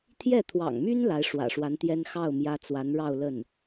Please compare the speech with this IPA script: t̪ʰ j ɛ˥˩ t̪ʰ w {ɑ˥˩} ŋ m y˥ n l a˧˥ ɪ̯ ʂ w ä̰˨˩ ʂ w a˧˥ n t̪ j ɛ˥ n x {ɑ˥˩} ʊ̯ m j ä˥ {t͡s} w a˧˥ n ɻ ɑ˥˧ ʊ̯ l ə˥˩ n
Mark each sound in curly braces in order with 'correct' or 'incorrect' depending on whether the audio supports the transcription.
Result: incorrect, correct, correct

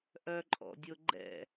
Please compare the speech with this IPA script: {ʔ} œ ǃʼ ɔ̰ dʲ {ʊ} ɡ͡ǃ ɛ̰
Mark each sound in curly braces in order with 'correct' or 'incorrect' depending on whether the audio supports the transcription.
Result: correct, correct

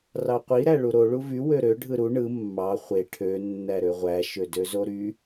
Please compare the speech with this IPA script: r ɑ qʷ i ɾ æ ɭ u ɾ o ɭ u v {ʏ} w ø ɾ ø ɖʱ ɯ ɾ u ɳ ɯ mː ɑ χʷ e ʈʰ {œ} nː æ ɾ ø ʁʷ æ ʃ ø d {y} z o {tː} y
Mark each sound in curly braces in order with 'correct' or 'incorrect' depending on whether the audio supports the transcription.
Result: incorrect, incorrect, incorrect, incorrect

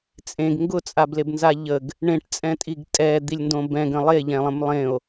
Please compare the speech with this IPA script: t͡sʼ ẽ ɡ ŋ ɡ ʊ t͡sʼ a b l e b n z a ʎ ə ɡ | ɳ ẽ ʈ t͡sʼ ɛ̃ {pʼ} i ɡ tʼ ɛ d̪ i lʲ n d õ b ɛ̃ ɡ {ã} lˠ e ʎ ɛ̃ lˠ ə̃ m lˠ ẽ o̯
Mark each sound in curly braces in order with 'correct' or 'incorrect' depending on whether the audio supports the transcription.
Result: incorrect, incorrect

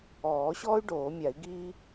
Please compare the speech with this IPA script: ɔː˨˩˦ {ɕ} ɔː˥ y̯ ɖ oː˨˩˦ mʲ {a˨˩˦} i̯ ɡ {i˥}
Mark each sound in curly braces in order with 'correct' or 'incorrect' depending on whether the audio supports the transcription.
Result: correct, correct, incorrect

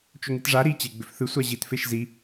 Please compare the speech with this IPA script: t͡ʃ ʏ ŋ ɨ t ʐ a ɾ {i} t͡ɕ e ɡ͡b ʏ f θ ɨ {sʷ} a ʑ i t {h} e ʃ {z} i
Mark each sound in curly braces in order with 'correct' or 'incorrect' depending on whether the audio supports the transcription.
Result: correct, correct, incorrect, correct

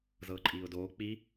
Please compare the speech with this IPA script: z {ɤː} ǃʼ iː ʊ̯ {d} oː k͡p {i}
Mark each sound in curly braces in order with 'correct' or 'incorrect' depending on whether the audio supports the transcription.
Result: correct, correct, correct

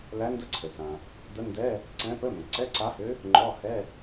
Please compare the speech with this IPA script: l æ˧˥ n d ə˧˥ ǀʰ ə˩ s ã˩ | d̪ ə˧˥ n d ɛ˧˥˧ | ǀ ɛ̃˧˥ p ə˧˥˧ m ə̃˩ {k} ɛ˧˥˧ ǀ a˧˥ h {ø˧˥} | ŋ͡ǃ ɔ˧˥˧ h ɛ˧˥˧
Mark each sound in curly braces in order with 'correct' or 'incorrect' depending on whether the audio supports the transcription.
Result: incorrect, correct

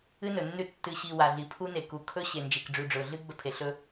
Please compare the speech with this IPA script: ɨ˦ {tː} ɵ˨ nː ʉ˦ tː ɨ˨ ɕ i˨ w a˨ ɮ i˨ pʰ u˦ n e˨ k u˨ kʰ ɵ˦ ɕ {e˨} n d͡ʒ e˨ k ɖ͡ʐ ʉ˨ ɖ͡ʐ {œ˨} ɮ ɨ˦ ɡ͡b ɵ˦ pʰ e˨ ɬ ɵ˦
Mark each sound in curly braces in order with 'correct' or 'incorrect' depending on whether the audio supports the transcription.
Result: incorrect, correct, incorrect

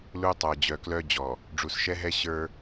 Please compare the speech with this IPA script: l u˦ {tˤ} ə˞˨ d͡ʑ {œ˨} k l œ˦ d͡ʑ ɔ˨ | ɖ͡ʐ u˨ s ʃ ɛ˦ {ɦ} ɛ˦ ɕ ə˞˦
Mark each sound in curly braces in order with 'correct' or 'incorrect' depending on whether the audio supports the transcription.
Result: correct, correct, correct

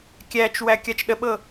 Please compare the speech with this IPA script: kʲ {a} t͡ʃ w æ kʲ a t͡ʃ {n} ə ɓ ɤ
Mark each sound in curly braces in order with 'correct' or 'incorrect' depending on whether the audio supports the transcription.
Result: incorrect, incorrect

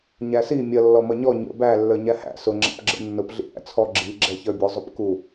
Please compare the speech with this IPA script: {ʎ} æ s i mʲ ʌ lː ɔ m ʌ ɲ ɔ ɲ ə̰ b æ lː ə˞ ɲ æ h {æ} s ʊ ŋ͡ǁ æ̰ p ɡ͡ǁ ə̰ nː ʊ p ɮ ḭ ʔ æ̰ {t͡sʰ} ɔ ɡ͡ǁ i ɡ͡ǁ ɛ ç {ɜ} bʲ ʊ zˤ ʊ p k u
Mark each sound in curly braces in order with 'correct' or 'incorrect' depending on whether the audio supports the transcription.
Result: incorrect, incorrect, correct, incorrect

